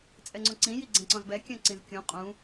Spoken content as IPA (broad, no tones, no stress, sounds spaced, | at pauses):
t͡sʼ ɛ ŋ͡ǀ õ ǀ ĩ j i ɡ͡ǀ ɛ̃ ǀ ɔ̃ z b ɛ kʲ œ̃ ǀ ĩ z kʲ ũ qʼ ũ